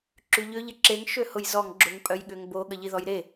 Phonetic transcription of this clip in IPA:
ǁ y ʎ ʏ ʎ ɪ ǁ e ŋ ʃ ø h ʊ j z ɔ ŋ ɡ͡ǁ ʊ ŋ pʼ œ j ɠ ʏ ŋ b o ɠ ə ʎ i ð ɔ j ɾ e

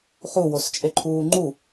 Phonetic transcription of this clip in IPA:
χ u w o s t͡ʃʼ e ǃʰ uː ŋ͡ǃ u

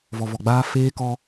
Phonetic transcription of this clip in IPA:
v ɔ˨ v ɔ˨ ɡ͡b aː˦ f eː˦ k ɔ˦

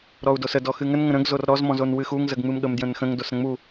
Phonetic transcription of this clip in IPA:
ɾ ɔ u̯ d o s ə d ɔ x ɨ ŋ ə n ŋ ə̃ ɾ ə̃ ɡ z o r ɾ ɔ z m ɔ̃ z o n w ɨ x u ŋ z ə ɡ ŋ͡m ɨ m ɠ ə m d j ə̃ n x ə̃ ŋ d o s ɾ ə̃ ŋ͡m u

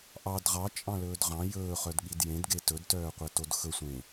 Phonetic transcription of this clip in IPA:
ʔ ɑ d ʁ ɑ t͡ʃʼ ɑ̃ l ɵː d ʁ ɑ̃ j ɵː χ œ d ɠ i d j ẽ d ɡ e t ɵ d t œː qʷ ɛ t o d x ɵ sʷ ẽ

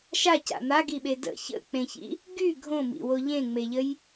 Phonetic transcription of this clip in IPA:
ʃ a c a̰ n̪ a ɡ i ɓ e d ə̰ ç ə̰ k͡p ẽ ç ḭ | ɡ y ɡʱ õ m ḭ w o ʎ ẽ ŋ͡m e ʎ ə j

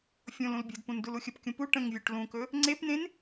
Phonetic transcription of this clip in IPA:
fʲ õ l ũ l bʲ ə̤ d p ũ n d u l u xʲ ə p kʲ ũ p u ʈ ə̃ ŋ vʲ u ʈ l ũ k ɵ | ŋ͡ǀ e p n ẽ n

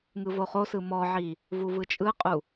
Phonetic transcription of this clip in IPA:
ŋ ɯ v o χ o s ɯ m ɔ ʕ i | v u v ɯ t͡ʃʼ ɯ qʼ u

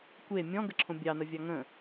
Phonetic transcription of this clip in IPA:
kʷ e mʲ ɔ̃ ɡ ə ǁʰ õ bʲ ɑ n ə vʲ ɑ ŋ ə̃

